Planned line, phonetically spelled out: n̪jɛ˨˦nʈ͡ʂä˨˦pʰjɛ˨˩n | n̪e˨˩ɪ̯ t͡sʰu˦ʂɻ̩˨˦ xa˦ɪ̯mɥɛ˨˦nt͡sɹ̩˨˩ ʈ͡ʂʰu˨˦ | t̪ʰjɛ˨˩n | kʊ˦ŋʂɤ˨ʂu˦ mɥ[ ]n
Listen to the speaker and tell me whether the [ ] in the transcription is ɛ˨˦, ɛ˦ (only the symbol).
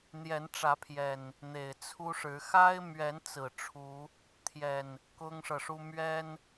ɛ˦